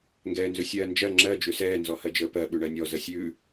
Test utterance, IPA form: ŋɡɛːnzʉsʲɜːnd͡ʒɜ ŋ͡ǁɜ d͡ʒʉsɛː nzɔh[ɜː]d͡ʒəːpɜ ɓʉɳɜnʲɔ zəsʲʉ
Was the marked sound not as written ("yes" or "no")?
yes